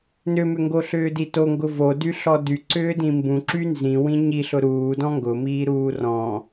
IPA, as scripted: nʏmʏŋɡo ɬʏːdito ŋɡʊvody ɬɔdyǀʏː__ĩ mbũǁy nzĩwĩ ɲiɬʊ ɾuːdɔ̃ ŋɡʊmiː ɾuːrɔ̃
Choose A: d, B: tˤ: A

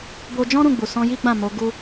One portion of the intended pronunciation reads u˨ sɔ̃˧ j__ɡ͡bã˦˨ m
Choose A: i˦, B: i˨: A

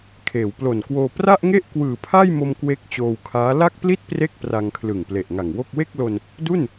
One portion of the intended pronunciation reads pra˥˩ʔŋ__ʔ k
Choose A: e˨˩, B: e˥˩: B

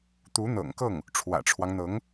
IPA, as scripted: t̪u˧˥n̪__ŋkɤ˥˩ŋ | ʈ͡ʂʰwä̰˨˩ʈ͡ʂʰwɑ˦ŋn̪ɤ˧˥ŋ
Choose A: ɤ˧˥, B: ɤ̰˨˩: B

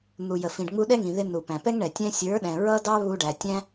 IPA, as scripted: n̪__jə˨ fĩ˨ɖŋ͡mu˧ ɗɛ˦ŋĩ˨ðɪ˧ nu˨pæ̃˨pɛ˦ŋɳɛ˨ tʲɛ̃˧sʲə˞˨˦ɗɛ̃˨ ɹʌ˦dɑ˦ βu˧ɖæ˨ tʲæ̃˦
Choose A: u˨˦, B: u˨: B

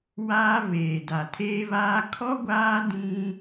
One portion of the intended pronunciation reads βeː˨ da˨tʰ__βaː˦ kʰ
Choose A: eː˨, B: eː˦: B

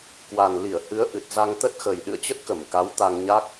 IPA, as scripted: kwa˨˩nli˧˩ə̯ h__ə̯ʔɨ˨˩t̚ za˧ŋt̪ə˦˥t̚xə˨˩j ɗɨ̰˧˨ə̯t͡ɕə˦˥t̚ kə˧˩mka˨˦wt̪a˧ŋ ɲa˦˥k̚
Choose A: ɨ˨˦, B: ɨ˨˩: A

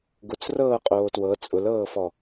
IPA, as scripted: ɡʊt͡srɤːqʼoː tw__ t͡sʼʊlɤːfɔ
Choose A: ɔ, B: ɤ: B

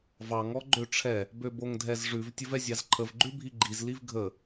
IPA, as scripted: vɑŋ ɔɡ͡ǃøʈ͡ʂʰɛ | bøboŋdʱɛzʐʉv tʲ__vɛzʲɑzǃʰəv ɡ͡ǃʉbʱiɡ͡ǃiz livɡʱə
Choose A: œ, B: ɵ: B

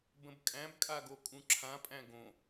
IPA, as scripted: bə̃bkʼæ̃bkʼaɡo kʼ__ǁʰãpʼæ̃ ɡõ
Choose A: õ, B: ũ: B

